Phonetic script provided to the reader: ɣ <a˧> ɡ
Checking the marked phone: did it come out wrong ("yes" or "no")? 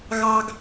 yes